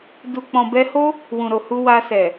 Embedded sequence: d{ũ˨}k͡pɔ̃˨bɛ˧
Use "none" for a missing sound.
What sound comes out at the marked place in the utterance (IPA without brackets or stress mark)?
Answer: u˨